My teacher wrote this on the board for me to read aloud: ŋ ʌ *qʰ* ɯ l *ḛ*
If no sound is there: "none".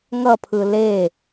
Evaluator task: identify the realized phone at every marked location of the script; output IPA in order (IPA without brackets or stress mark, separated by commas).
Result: pʰ, e